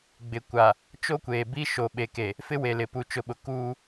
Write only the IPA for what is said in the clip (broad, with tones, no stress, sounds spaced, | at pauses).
ɡ͡b ɪ˨ kʷ a˨ | t͡ʃ o˦ kʷ eː˨ b i˦ ʃ o˨ ɓ e˨ k e˨ | f ɪ˦ w e˨ l ɪ˨ p u˨ t͡ʃ ʊ˨ ɓ ʊ˨ k uː˦